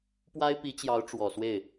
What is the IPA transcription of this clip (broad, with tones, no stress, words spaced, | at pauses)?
pwa˥ɪ̯pi˧˥t͡ɕjɑ˧˥ʊ̯ ʈ͡ʂwɔ˨˩swe˥˩ɪ̯